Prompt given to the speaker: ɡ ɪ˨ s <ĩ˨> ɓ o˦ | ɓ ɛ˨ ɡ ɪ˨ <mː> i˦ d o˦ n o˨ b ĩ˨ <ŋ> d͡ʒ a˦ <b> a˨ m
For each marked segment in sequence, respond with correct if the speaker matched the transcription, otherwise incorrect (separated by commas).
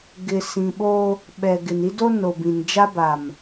correct, incorrect, incorrect, correct